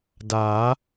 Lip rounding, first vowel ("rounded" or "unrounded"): unrounded